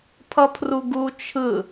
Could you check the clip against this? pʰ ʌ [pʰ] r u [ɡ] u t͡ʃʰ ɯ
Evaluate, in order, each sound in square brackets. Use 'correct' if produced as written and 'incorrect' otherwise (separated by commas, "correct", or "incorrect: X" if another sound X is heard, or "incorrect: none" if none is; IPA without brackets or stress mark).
correct, correct